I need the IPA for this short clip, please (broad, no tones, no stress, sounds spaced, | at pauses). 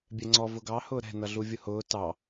bʲ ɛ ŋ͡ǀ ɔ v ʊ ɡ ɑ h ʊː ɾ ɛ̤ n ʌ ɮ u vʲ ʊ h ʊː t ɑ